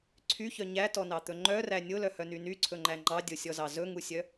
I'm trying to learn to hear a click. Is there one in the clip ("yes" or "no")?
yes